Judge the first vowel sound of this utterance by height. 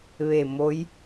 mid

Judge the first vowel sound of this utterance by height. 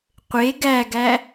mid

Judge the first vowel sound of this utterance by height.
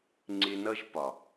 high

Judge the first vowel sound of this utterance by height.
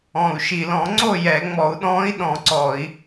mid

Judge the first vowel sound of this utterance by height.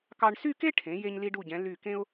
low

